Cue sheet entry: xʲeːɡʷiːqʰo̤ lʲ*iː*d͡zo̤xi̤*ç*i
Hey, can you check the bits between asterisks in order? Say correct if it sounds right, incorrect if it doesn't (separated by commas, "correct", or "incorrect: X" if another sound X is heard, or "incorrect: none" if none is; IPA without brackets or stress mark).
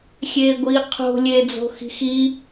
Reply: incorrect: eː, incorrect: x